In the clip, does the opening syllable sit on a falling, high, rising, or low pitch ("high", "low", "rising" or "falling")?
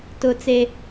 high